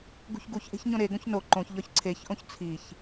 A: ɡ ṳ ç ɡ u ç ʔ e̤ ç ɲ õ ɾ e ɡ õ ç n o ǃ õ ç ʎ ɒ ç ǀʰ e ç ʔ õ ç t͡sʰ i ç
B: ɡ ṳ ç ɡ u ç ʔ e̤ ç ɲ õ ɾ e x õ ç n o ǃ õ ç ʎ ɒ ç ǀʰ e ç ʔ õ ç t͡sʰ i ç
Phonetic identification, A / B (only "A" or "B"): A